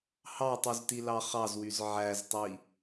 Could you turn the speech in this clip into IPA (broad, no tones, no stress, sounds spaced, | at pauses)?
h ɑ tˤ y z t i l ɑ χ ɑ z w y z ʕ æ z tˤ i